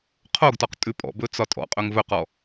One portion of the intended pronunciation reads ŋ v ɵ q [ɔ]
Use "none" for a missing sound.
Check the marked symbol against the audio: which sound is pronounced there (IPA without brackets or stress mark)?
ɔ